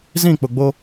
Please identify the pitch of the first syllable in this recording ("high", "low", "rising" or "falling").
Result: falling